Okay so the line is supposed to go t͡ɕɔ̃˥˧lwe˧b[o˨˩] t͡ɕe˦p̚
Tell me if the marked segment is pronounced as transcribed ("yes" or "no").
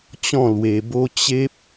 no